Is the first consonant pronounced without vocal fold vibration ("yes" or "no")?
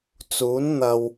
yes